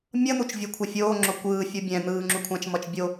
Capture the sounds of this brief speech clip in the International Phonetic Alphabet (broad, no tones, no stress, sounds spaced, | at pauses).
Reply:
mʲ ʌ n̪ u t͡ʃ vʲ ɯ kʷʰ ɛ fʲ oː ŋ͡ǁ o kʷ ɯː fʲ u bʲ ɛ̃ n̪ ɯː ŋ͡ǁ u kʷʰ ã t͡ʃ m ʌ t͡ʃ bʲ o